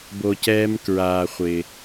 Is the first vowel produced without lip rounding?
no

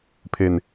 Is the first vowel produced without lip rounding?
yes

